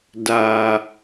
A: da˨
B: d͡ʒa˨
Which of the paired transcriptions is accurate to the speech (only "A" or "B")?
A